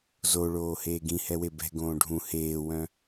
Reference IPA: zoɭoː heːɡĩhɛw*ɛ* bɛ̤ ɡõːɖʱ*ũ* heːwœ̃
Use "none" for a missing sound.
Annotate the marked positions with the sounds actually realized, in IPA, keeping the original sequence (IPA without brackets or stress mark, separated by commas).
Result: e, ũ